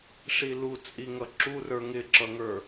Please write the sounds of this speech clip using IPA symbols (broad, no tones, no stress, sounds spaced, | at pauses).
ʂ i l u t͡sʼ i ŋ ʌ ǁ u r ə˞ ŋ ɪ ǁ ʌ ŋ ə˞